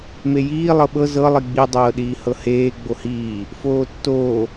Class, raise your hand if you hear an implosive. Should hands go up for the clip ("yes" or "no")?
yes